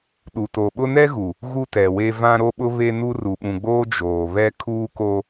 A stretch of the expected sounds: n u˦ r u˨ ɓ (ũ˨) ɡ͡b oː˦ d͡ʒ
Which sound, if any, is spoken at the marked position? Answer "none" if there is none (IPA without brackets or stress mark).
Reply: ũ˨